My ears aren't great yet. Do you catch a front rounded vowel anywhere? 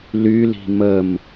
yes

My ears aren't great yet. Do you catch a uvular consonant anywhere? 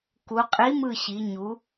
yes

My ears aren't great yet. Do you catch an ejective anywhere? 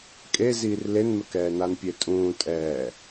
yes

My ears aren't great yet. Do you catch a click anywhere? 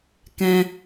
no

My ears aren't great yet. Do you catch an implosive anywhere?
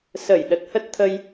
yes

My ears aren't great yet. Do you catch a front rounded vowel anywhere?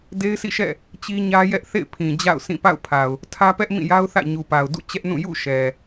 no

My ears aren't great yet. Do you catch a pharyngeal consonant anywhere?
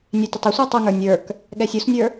no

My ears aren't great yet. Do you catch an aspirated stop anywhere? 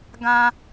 no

